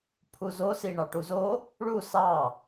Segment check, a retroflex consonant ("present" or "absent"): present